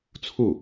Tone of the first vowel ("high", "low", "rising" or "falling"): falling